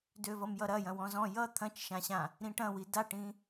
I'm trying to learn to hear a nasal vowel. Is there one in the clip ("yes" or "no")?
yes